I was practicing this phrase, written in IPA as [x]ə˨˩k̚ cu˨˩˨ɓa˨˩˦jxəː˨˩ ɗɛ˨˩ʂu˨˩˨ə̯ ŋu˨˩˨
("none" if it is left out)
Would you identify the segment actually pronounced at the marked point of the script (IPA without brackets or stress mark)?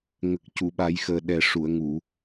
ŋ